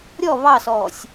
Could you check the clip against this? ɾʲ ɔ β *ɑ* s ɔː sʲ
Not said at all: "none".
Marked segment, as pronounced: ɑ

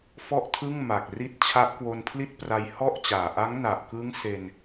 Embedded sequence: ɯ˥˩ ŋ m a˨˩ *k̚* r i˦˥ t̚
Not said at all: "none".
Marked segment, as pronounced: k̚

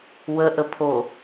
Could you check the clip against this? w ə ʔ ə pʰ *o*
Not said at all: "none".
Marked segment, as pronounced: o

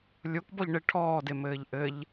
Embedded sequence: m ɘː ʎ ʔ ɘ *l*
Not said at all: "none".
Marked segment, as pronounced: ʎ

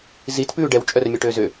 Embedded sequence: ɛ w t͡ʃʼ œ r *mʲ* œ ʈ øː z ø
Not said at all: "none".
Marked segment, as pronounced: mʲ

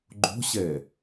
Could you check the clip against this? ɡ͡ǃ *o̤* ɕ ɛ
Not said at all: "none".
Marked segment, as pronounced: o̤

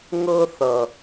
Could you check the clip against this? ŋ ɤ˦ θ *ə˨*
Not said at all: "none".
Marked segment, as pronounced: ʌ˨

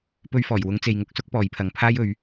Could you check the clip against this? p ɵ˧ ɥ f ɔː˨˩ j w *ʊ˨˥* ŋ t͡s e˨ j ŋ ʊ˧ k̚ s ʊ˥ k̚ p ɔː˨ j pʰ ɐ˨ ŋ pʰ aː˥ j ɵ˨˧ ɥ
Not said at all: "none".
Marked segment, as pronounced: ʊ˨˧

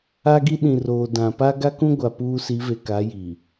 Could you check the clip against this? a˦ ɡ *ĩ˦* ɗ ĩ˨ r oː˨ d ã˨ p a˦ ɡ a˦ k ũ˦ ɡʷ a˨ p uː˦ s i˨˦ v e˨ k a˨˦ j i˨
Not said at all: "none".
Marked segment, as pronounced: i˦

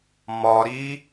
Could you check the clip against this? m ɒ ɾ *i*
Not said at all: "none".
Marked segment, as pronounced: i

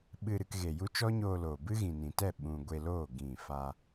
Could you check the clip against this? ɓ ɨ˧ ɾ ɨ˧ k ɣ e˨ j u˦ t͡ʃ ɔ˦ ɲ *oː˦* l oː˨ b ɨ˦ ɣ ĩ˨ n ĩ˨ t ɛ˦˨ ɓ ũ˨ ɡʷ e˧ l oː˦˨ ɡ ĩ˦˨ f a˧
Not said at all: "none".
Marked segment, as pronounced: oː˧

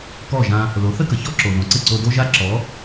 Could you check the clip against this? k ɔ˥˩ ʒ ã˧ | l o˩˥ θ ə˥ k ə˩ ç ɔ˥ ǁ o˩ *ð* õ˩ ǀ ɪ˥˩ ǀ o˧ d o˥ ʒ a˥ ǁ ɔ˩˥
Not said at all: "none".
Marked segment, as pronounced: ð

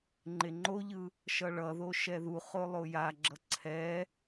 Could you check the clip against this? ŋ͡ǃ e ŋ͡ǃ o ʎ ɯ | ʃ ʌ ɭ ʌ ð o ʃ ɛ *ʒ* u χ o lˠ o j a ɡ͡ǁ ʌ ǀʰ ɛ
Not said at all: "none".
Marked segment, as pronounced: ð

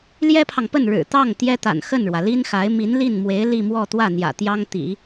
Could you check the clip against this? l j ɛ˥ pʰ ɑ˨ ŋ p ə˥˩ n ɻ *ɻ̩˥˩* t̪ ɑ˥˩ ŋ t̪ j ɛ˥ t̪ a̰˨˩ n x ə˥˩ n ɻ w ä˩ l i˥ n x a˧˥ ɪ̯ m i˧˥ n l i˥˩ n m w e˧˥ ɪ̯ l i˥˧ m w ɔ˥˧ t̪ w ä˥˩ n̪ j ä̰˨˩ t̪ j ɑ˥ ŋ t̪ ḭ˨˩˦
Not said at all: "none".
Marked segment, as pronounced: ɻ̩˨˩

